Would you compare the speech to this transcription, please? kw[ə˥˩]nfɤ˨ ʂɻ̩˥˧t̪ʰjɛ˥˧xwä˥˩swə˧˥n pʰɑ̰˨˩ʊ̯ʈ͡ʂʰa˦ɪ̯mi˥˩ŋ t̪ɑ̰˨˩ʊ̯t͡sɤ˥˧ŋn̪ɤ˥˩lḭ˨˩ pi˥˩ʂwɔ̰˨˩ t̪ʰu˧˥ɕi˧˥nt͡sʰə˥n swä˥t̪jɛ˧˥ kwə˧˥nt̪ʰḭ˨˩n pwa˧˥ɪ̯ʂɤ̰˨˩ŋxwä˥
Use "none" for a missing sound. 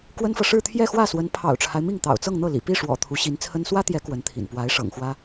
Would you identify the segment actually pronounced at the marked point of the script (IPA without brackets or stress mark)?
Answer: ə˥